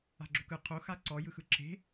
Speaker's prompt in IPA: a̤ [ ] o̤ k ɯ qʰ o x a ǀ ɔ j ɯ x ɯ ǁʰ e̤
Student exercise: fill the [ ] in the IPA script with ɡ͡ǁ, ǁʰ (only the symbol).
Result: ɡ͡ǁ